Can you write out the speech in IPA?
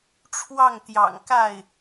ʈ͡ʂʰwɑ˥˩ŋt̪jɑ̰˨˩ŋka˥˩ɪ̯

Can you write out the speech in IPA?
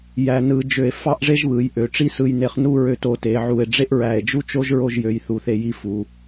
jæ˧nɯ˧ d͡ʒø˧˩e̯ fɑ˥ʔʐe˥ʒβɯ˩˧j ʔø˩˧ʈ͡ʂi˥sɯ˧j ne˧χnu˥˧ɹø˧t o˩˧te˩˧ʕu˧˩e̯ ɖ͡ʐe˥ʔɹæ˧˩e̯d͡ʒu˥t͡ʃo˥ʒ ɹo˧ʒjø˩˧j θu˩˧θe˧˩ ji˧ fu˩˧

